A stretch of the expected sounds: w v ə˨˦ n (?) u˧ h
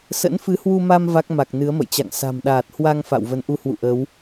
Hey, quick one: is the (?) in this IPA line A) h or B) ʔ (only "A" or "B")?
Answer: B